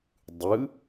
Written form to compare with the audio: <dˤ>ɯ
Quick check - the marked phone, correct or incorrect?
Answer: correct